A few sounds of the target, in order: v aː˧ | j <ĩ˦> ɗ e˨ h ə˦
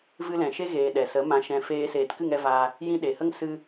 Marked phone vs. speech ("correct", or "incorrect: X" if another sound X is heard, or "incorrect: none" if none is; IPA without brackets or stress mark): correct